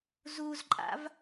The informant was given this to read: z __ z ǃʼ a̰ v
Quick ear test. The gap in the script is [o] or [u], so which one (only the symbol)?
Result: u